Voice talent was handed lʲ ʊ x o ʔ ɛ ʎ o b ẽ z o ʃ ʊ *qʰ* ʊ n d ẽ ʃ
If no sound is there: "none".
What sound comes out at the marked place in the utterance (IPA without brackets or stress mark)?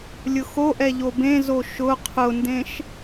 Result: qʰ